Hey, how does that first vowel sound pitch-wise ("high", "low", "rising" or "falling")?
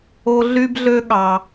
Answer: low